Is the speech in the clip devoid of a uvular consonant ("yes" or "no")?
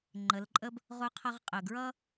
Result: no